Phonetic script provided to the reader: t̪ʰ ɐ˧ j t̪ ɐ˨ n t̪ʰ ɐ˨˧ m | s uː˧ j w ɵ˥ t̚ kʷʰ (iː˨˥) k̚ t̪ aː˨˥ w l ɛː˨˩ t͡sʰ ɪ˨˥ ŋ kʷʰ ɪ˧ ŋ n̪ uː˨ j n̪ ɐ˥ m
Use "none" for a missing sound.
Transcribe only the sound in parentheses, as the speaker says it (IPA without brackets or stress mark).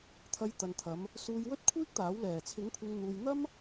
iː˥